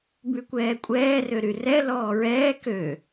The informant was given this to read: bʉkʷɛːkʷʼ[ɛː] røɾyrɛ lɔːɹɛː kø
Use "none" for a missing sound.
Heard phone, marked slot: ɛː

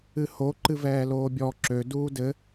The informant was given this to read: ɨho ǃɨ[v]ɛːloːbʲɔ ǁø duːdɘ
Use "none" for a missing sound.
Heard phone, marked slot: v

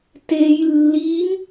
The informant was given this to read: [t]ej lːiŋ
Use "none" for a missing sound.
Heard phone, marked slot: t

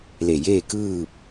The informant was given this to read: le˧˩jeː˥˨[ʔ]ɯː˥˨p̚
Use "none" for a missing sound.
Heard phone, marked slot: k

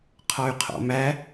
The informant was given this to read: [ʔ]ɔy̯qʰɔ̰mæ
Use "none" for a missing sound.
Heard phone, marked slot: qʰ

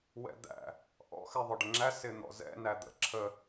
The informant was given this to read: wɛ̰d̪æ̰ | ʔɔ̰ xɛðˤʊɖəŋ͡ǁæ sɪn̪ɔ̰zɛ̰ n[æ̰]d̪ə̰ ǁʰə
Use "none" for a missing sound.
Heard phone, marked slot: æ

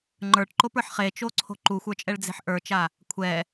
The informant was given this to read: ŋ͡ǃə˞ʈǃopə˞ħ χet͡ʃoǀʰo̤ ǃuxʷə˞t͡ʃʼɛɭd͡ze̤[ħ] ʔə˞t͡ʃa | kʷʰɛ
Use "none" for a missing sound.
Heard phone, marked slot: ħ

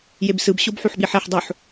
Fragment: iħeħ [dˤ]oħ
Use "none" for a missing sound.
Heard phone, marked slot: dˤ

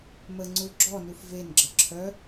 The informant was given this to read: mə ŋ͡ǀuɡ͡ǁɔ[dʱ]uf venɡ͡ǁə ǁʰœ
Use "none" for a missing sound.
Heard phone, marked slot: n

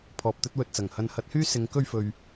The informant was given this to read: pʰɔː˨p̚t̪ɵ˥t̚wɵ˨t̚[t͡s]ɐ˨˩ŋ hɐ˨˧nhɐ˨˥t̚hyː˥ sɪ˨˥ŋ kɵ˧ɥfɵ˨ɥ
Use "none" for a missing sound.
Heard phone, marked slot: t͡s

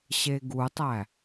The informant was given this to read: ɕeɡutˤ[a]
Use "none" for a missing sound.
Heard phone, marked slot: æ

